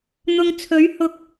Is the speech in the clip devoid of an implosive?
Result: yes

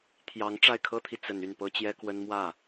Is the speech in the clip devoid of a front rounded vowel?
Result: no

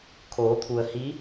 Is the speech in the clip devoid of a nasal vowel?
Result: yes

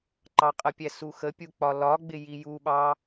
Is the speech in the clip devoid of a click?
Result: no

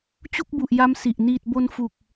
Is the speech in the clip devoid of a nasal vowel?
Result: yes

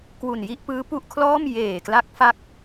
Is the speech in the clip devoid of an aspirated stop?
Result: no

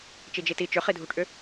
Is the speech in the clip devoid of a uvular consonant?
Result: no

